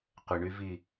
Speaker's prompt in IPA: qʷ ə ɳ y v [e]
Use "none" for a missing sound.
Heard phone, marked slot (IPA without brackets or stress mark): i